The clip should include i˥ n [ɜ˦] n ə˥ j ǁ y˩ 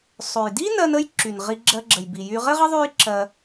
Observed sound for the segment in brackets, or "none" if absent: ɜ˦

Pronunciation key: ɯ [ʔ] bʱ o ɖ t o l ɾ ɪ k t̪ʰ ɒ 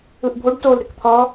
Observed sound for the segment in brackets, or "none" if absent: ʔ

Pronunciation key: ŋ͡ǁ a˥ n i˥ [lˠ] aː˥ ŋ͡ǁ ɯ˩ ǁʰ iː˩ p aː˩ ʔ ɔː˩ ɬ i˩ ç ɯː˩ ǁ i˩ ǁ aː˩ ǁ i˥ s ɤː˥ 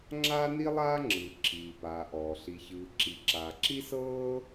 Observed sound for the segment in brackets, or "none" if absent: lˠ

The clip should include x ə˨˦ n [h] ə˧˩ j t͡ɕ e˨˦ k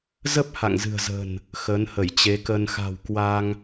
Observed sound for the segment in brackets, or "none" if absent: h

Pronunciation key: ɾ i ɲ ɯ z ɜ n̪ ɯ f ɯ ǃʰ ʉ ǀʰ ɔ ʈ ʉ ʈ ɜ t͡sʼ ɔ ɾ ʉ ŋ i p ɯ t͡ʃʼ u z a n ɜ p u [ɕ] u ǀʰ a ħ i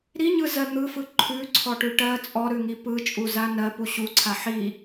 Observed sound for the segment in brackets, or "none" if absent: ɕ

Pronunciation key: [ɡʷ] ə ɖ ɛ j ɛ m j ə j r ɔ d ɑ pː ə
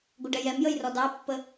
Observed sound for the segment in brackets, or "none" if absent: ɡʷ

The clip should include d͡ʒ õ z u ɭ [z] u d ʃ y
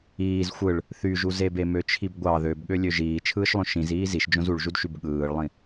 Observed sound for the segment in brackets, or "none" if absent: ʒ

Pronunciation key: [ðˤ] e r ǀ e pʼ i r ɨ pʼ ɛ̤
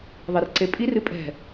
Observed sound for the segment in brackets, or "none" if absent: ðˤ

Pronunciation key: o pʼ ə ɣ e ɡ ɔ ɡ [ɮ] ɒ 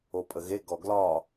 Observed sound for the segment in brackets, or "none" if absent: l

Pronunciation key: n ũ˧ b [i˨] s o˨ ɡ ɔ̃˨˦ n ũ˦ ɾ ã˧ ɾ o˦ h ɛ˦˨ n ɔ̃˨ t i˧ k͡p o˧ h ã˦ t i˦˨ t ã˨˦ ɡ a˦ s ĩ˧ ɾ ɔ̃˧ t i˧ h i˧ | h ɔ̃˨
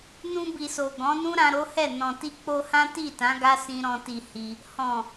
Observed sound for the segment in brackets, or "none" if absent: i˨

